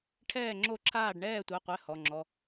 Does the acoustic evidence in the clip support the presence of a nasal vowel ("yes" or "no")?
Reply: no